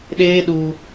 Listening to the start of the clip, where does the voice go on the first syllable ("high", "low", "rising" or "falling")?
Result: high